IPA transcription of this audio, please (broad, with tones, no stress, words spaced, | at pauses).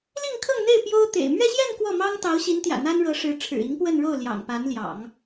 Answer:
li˥˧ŋkʰɤ˥˧ŋn̪e˥˩ɪ̯ pjo˥ʊ̯t̪ḛ˨˩ɪ̯ mɥɛ˥˧ɕjɛ˥˧n kwɔ˥˩mɑ˥ŋt̪ɑ˧˥ʊ̯ ɕi˧˥nt̪jä̰˨˩ n̪a˥nɻɤ˧˥ʂɻ̩˧˥ ʈ͡ʂʰɻ̩˨˩i˧˥ŋpwə˥˧nɻo˥˩ʊ̯ ljɑ̰˨˩ŋpa˧˥nljɑ̰˨˩˦ŋ